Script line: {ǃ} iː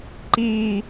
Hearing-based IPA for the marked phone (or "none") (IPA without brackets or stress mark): ǃ